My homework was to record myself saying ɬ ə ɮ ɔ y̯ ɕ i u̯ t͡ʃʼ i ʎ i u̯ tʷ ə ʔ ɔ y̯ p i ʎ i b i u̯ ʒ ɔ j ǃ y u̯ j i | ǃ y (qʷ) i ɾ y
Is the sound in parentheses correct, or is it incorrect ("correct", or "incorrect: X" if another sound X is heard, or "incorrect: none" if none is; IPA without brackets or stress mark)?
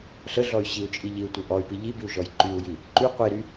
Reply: correct